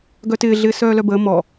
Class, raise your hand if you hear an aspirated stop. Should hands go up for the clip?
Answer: no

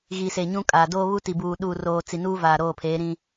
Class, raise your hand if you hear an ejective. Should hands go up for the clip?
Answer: yes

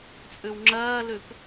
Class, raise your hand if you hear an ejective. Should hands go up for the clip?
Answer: yes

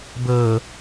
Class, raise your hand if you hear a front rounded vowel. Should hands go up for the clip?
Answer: no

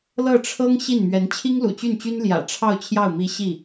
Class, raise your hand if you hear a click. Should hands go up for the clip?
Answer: no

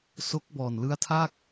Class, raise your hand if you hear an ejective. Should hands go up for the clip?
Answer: no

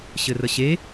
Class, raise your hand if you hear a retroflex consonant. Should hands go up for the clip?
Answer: no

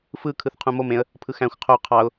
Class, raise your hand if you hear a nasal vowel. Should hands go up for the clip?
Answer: yes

